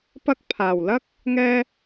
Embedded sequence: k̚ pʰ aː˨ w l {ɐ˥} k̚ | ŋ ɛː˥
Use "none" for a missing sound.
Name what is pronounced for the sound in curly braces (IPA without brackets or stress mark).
ɐ˥